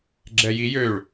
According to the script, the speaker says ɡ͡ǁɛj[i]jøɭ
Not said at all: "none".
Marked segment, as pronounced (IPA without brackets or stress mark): i